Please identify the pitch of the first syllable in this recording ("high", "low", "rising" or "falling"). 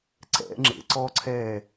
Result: rising